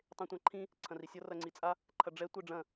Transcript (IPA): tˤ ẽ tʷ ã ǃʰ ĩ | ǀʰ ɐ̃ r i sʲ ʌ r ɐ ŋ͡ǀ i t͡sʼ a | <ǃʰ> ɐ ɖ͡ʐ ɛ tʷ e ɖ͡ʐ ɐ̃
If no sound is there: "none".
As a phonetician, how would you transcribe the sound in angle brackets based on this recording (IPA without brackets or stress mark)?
ǃʰ